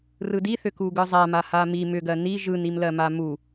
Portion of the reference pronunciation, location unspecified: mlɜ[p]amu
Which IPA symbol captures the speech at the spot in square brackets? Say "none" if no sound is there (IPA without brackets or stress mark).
m